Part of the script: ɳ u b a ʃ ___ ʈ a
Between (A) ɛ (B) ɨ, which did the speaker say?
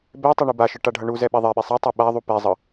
B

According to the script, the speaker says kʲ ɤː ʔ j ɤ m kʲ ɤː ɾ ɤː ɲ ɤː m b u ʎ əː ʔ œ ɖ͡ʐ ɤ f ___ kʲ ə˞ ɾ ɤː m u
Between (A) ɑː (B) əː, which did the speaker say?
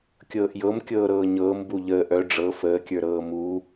B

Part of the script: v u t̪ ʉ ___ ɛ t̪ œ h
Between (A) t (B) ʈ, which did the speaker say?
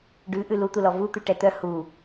B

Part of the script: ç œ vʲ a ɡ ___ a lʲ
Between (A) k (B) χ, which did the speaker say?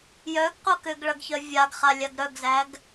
B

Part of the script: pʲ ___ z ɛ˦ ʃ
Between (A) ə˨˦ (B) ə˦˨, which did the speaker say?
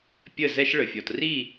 B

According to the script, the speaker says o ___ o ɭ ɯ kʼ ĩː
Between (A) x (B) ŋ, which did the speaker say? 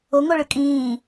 B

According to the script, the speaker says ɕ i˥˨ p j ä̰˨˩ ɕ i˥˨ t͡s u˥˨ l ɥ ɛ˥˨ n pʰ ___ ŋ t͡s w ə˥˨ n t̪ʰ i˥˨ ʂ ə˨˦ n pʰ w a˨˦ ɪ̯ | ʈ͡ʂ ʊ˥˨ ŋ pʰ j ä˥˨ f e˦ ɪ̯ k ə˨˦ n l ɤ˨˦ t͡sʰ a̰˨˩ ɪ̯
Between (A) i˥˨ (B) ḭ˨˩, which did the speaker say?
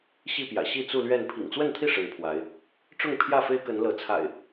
B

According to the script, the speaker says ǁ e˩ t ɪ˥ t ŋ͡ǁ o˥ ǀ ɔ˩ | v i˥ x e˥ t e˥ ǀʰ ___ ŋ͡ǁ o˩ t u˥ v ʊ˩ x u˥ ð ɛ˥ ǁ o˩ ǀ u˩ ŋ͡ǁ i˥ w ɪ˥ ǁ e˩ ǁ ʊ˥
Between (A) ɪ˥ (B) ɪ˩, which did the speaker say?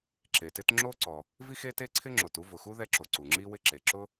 A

